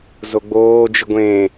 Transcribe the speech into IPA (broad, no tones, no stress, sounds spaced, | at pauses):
z o ɡ͡b oː d͡ʒ ɨ ɡʷ ẽː